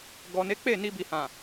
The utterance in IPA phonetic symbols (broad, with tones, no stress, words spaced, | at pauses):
ɡɔ˨ne˨˦ k͡pe˦˨ni˧bi˨ hã˨